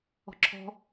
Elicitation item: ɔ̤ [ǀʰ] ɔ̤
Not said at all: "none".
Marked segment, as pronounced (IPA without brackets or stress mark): ǁʰ